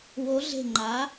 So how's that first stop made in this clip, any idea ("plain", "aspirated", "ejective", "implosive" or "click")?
click